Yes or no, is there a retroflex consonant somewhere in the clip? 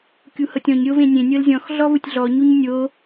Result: no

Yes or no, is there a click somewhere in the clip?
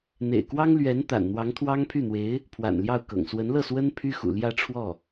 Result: no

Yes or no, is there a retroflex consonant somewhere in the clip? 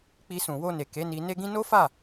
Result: no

